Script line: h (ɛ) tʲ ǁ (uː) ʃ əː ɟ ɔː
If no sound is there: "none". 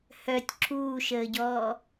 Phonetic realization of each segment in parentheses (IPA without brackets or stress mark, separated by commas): œ, uː